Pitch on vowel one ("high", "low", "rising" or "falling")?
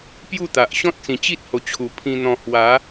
falling